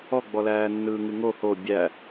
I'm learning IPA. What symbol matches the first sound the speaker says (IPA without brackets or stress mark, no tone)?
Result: ɔ